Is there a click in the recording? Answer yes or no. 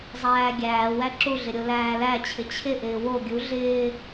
yes